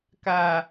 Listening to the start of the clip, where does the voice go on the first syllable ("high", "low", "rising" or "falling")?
low